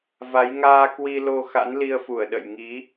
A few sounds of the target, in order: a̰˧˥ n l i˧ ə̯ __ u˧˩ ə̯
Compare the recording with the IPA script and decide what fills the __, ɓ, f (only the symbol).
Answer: f